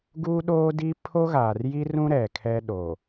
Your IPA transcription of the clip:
ɡuː˦ɗoː˦di˦ pʰo˦ɣaː˨rji˦rũ˦ ɾɛ˨kʰɛ˦ɗo˨

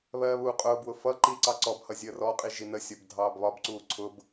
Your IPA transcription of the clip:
βɜːβuːqʼʊːbwʊ fʌ ǃiǀɑ ǀɔbhʌ zʲəːrɔqʼi ʒinəsʲɔb dʱɑːbβɒbǀuː ǀʰʊb

